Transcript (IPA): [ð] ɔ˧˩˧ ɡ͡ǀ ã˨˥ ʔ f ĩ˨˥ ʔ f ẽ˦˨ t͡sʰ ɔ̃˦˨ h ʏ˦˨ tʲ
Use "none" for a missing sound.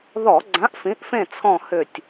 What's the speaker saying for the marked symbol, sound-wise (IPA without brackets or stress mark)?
ð